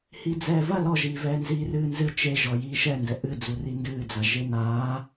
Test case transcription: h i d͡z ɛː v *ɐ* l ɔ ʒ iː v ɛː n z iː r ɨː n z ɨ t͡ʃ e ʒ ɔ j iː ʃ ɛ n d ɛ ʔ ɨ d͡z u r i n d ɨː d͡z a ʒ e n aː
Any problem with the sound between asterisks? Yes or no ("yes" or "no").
no